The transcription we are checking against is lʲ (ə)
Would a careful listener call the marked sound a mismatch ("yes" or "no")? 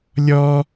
yes